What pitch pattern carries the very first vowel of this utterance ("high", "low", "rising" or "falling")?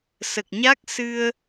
low